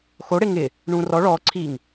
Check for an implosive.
absent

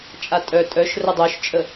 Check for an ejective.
present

